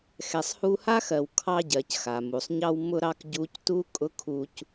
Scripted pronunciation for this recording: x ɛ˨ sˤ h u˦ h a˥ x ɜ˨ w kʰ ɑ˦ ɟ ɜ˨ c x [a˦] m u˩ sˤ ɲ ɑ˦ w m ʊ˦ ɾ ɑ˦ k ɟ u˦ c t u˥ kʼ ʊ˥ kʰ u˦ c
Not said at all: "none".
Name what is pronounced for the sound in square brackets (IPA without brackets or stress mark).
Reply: a˩